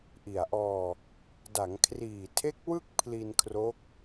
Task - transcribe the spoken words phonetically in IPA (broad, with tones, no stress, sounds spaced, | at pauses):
ʔ i˨˩ a̯ ʔ ɔː˧ | d a˩˦ ŋ kʰ r iː˨˩ tʰ e˦˥ k̚ w ɯ˥˩ k̚ pʰ l i˧ n kʰ r o˦˥ k̚